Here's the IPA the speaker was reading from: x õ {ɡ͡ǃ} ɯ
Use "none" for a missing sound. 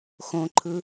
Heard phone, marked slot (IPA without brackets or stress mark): ǃʰ